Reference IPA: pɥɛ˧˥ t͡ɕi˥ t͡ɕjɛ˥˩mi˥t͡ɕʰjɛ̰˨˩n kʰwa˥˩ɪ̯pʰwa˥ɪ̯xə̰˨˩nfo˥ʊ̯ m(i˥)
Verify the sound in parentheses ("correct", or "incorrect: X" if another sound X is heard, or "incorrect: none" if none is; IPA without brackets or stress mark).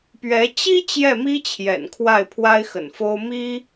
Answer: correct